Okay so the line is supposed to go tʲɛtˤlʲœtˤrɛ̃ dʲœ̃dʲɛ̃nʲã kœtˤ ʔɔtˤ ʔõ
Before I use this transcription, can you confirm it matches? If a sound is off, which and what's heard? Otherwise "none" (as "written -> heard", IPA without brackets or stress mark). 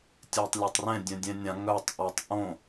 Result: k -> ŋ